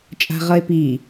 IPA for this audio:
t͡ʃʼ a̤ ʁ ʌ e̯ p i

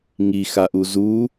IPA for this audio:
ŋ i x a ʔ u z u

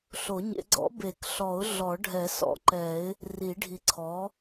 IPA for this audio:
ɬ o˨˩˦ ɲ ḛ˨˩˦ ɡ͡ǀ ɔ̰˩˥ b e˨˩˦ k ɬ ɔ˨˩˦ ʊ̯ ɮ ɔ˨˩˦ ɖʱ ɛ˨˩˦ s ɔ̰˩˥ ǃ ɛ˨˩˦ ɪ̯ | r i˨˩˦ ɖʱ i˨ ǀʰ ɔ˩˥

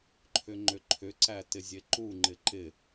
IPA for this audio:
ǃʰ ʏ ŋ͡ǃ ʏ ǃʰ ʏ ǀ æ t ɪ zʲ e ǃ u ŋ͡ǃ ɪ ǃ ɪ

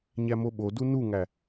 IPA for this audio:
ɲ æ m o ɓ o d u n u ŋ æ

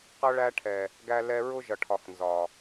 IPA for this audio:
q ʌ˦ ɭ æ˦ ʈʰ ɛ˨ | ɡ æ˧ l ɛ˧ ɹ ʊ˦ ʒ ʌ˨ ʈʰ ɒ˨ x n z ɒ˨

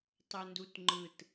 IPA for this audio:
tˤ o n d u t ŋ͡ǃ ɯ t

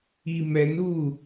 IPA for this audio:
i m ɛ n uː

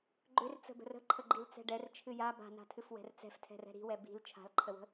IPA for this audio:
ɡ͡ǃ ʏ r t͡s ə̤ b ə̤ r ə̤ ǃʰ ə ɡ͡ǃ i l t͡s ɛ̤ ɖ ɛ r t͡ʃʰ ɨ j a b a̤ n a̤ tʰ ɨ f w ɛ̤ r t͡s ɛ̤ f tʰ ɛ̤ r ɛ̤ ɾ i̤ w ɛ b i̤ l t͡ʃʰ a̤ l ǃʰ ə w ə̤

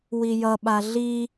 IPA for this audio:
w i j ʌ ɓ a ɮ i

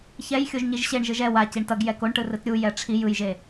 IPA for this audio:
ç ɛ j xʲ o ʒ ɲ i ʒ ɕ e ɳ ʒ ɯ ʒ ɛ w a c i ɳ t ʌ ɡ j ɛ k o ɳ ʈ ɯ r ɯ t ɾʲ u j ɛ ʈ͡ʂʰ i j ɯ j ʒ e

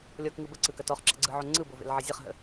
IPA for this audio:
lʲ ɔ k ŋ ɯ b ə ǀ ɯ k ɐ t ɔ χ ǁ ə̰ ɡ͡ǀ ɯ ʕ o ŋ͡ǀ ɯ b o v ḛ l ʕ ə zʲ ɐ χ ɦ ə̰

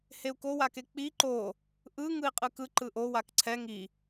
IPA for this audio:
h e u̯ k o w a k e k͡p i ǃ o | ʔ ɯ ŋ ɯ i̯ qʼ ɯ k ɯ ǃ ɯ ʔ o w a k ǀʰ ɛ ŋ i

